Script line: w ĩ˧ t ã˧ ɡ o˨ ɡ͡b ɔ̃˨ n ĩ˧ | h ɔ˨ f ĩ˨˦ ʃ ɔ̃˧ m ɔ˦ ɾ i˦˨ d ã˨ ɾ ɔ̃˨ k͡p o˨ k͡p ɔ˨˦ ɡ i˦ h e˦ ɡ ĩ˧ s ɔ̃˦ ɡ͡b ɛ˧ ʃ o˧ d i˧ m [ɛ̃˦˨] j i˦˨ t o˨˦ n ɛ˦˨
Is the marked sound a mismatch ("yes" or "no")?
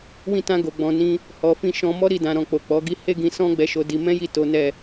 yes